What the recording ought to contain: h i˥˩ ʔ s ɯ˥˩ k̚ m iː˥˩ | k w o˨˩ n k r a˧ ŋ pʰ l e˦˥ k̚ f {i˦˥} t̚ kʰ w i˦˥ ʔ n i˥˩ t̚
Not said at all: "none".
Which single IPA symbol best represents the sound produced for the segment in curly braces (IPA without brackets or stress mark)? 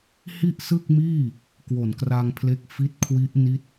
i˦˥